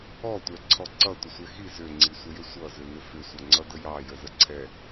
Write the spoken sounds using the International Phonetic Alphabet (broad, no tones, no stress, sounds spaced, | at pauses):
ɔ tʷ ɛ ǀʰ ɔ ǀ ʌ tʷ ə sʷ ɛ x i z ʏ ŋ͡ǀ i sʷ ə j ʏ sʷ ʌ z ʏ n ʏ f ʏ sʷ ʌ ŋ͡ǀ ʌ d ə j ɑ j ə z ə ǀʰ ɛ